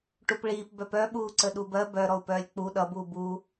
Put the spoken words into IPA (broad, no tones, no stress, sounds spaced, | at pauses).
ʈ u p ɭ iː p b œ p œ ɓ uː ǀ ə ɗ u b ɜ b œ ɾ ɔ u̯ p œː lʲ k͡p u ɗ ʌ b uː b u